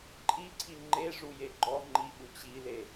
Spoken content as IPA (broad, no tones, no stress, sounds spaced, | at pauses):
ǃʼ i ǀʰ i ŋ͡ǃ e ʐ u j e ɡ͡ǃ ɔ ŋ͡ǃ i ɓ u t͡ɕ i l e